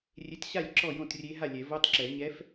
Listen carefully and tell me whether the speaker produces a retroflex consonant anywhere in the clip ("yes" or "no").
no